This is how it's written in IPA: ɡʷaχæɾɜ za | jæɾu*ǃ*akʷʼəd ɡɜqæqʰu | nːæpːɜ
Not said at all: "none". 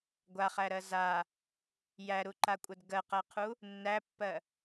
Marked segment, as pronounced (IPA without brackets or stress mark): ǃ